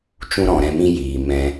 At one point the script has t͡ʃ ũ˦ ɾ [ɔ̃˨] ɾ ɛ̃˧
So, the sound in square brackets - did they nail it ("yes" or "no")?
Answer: yes